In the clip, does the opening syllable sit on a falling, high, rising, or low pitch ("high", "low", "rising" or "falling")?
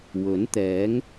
rising